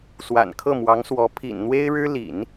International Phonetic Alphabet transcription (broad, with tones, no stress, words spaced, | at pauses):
swa̰˨˩n kʰɤ˥˩mwɑ˧˥ŋswɔ˧˥ pʰḭ˨˩nn̪we˥ɪ̯ɻɻ̩˥ lḭ˨˩˦n